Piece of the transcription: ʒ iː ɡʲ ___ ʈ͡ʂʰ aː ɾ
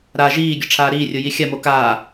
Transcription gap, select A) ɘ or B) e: A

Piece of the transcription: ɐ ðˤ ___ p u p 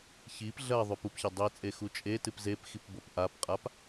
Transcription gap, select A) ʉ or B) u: A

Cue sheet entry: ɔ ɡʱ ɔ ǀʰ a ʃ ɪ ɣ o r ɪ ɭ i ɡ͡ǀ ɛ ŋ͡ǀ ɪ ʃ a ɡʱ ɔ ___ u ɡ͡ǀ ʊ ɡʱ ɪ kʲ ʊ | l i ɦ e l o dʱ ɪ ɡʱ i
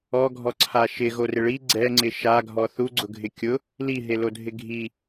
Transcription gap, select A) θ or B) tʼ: A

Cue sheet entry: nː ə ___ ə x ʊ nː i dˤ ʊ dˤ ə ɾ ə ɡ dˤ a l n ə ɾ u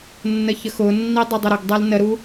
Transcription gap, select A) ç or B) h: A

